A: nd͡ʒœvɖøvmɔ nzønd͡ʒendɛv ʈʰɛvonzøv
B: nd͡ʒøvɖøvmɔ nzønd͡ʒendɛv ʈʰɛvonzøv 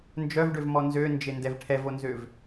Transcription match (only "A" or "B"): A